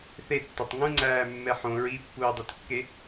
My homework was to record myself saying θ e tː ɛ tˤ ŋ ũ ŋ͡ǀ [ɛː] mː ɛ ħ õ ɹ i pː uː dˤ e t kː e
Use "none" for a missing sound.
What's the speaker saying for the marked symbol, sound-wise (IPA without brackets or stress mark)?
æː